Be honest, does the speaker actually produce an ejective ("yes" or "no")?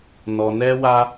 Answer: no